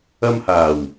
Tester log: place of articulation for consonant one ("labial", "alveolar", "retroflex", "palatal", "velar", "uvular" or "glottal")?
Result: labial